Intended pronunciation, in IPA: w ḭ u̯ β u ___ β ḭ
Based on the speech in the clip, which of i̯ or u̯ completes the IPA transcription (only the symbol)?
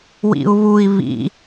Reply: i̯